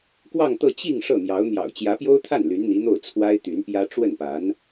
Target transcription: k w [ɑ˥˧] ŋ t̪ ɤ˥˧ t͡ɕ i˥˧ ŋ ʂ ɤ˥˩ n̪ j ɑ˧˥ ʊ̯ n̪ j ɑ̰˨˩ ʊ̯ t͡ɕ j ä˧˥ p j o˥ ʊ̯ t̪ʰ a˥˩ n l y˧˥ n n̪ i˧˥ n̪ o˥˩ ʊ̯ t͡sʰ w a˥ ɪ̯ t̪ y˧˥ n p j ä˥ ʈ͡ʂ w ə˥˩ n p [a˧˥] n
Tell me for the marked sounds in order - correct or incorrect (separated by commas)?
correct, correct